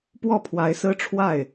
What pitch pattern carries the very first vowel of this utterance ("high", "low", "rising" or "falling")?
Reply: falling